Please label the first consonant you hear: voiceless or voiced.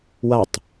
voiced